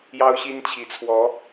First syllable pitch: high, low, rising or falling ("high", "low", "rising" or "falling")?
high